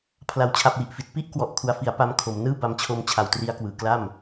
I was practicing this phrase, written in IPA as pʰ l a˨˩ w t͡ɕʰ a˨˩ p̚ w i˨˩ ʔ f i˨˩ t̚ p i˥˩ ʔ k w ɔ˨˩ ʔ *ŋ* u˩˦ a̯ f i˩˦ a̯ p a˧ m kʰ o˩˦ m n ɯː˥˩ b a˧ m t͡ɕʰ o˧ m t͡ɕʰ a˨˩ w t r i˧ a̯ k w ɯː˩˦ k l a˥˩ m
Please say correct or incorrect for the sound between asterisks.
incorrect